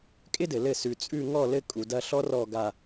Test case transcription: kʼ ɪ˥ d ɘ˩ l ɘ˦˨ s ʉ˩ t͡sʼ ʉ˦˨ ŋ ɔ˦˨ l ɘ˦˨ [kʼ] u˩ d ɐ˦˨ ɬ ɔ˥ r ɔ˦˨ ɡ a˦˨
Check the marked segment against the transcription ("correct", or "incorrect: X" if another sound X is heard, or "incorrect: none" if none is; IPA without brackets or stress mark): correct